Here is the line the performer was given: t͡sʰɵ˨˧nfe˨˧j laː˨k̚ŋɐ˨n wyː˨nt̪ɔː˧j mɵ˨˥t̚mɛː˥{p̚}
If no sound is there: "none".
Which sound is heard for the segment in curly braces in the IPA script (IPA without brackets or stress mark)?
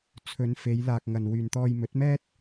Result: t̚